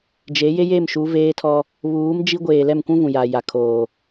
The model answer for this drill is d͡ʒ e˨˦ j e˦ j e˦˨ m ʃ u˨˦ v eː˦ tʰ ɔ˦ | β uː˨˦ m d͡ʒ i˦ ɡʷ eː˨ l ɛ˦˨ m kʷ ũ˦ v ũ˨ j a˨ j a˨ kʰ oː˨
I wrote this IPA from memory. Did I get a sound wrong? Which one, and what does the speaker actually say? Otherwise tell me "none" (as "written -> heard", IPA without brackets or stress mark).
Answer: none